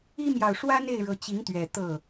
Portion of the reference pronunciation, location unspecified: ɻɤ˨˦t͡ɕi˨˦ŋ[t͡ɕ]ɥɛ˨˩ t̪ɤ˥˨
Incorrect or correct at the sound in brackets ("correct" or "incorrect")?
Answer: incorrect